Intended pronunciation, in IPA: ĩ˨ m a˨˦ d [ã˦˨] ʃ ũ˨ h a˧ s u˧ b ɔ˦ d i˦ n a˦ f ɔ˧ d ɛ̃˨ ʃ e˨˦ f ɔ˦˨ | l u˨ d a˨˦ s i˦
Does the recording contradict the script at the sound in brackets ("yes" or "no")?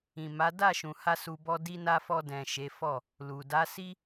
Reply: yes